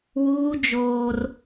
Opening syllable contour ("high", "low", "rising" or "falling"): high